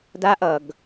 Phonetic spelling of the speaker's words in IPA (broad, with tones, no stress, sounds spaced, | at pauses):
d a˦ ʔ ʌ˨ ɡ